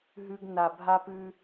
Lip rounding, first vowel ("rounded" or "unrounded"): rounded